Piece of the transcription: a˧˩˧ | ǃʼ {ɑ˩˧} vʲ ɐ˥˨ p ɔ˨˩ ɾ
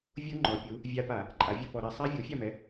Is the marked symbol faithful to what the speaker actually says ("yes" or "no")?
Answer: no